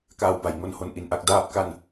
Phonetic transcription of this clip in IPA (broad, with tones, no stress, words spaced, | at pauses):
kaː˧wba˩˦jŋo˧nho˧n ʔi˧nʔa˥˩k̚ daː˥˩p̚ka˥˩n